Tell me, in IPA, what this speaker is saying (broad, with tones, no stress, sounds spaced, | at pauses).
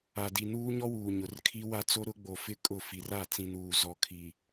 a˨ d i˨ n uː˦ ɲ ɔ˦ w uː˨ ɲ ʊ˨ r kʰ i˦ w a˦ t͡s o˦ ɾ ʊ˦ ɡ͡b o˨ f ɪ˦ kʼ ʊ˦˨ f i˨ r a˦˨ t͡s ĩ˨ n uː˨ z ɔ˨ kʰ i˨